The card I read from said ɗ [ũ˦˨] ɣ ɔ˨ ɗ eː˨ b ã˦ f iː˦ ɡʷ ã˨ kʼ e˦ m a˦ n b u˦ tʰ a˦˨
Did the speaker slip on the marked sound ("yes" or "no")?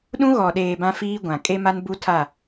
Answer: yes